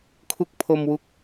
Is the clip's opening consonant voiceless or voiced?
voiceless